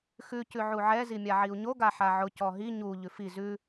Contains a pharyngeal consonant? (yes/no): yes